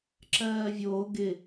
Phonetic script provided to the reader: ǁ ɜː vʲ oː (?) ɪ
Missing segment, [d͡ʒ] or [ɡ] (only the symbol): ɡ